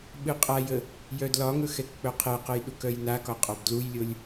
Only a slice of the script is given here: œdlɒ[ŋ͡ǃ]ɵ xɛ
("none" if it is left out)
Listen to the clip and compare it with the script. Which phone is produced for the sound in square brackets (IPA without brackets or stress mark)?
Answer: ŋ